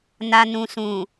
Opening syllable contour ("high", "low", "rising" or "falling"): low